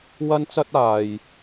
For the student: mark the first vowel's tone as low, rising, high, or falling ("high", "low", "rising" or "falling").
high